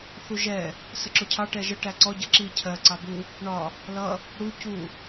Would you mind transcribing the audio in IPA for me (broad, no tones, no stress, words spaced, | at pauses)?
θuʒɛ | səǁʊcʰɑ ʈɛʒə ʈæǀɔ ɟʌǁi cʰɜ ǀɑbu | ɳɒ | lʌ | ɽu cu